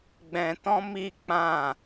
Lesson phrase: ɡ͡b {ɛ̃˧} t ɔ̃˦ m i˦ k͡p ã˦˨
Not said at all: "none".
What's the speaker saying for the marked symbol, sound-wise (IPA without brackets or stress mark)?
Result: ɛ̃˧